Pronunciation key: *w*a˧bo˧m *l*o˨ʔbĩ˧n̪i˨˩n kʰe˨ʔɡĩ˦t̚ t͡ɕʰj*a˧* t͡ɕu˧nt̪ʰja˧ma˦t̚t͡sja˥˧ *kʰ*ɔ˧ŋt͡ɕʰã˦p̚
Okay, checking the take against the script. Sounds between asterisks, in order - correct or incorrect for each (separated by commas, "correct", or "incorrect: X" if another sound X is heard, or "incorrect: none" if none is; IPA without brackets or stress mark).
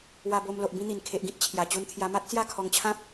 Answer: correct, correct, incorrect: a˨˩, correct